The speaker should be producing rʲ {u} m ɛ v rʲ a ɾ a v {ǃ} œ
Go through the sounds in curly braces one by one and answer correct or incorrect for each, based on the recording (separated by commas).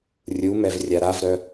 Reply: correct, incorrect